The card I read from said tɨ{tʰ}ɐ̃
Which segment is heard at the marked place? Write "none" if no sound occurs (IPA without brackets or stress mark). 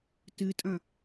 tʼ